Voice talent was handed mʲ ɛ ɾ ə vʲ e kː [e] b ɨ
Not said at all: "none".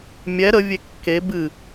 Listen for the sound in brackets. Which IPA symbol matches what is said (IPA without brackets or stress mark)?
e